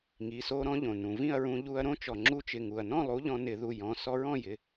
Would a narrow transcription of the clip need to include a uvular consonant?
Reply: no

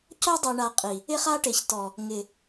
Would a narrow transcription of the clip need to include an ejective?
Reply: yes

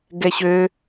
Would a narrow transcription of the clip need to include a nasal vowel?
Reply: no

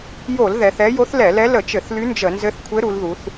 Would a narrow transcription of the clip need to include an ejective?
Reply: no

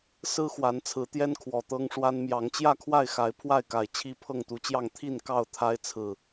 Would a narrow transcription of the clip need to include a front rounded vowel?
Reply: no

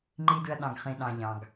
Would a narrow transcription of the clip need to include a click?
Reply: yes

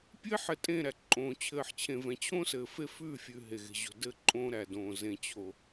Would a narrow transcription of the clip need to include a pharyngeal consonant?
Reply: yes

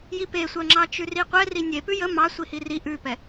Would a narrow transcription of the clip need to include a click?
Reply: yes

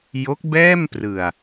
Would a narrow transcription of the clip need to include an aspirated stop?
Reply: no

